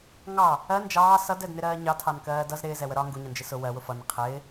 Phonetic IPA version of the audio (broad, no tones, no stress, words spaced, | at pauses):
ŋɑ | ɜ nd͡ʒɑː sʌdɛdnɪɾɜː ɲɑtʰɑnkɜː dʌz ɾɪːzɛwə ɾɒ ŋɡuɲʌnd͡ʒɪ sʊ wɜwʊ fʌnə qʰɪː